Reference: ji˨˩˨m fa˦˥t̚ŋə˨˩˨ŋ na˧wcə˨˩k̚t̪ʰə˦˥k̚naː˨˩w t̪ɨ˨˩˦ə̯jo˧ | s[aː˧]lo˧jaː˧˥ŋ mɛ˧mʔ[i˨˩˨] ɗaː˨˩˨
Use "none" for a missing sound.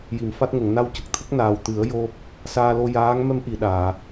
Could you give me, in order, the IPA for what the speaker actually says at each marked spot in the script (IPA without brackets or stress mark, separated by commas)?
aː˧, i˨˩˨